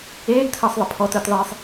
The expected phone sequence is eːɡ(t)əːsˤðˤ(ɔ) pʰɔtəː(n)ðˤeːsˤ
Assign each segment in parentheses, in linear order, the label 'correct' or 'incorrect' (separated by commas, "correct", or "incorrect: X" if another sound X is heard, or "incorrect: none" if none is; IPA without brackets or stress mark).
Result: incorrect: tʰ, incorrect: ə, incorrect: t